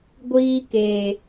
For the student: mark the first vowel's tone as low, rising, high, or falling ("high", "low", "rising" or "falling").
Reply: high